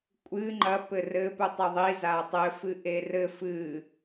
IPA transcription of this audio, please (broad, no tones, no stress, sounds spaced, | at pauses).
kʷʼ ɨ ŋ͡ǃ ɐ p ɘ r ɘ p u tˤ ɘ ðˤ i z a tˤ ɘ f ɨ ʔ e r ɘ f ɨ